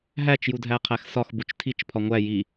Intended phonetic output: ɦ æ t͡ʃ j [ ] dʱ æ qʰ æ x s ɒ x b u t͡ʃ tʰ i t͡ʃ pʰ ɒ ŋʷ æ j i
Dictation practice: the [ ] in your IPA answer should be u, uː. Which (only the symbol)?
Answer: u